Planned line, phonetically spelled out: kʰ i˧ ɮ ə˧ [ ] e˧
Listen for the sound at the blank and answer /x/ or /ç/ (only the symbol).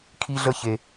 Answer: ç